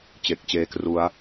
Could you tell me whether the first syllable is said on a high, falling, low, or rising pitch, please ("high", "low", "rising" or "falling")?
low